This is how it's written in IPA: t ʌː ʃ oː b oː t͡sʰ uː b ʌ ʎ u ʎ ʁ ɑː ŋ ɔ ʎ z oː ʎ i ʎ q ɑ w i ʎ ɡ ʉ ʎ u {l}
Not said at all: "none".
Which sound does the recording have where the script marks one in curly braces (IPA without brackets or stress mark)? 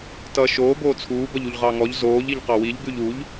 ʎ